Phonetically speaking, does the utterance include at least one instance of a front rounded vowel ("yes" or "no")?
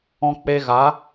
no